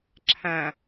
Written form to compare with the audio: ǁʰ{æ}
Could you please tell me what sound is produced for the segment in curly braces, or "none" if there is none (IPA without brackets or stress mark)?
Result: æ̃